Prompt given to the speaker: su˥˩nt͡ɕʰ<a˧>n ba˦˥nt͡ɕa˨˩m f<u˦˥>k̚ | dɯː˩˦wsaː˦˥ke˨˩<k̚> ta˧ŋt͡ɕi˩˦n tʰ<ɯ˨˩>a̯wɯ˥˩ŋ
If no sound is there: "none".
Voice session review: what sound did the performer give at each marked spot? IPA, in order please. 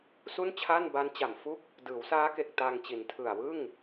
a˥˩, u˥˩, k̚, ɯ˨˩

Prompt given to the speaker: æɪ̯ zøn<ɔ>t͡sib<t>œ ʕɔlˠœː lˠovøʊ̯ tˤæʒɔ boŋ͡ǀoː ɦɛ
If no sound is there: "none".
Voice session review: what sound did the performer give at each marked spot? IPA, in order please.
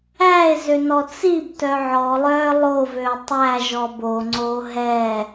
ɔ, t

